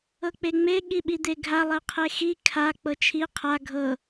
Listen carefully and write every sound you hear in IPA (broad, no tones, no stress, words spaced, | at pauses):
ɤk͡peŋ͡me ɠiɓid̪eɡʱa lˠɛqʰexi kʰa k͡pɤt͡ʃʰi qʰa ɡʱɤ